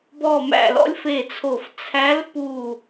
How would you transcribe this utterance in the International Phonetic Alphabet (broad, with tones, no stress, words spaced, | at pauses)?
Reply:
bɔ˧˩mæ̰˧˩ lɔ̰˧˥lʲfe˧˩t͡sʰo˧˩f t͡sʰæ˧˥lpu˧˩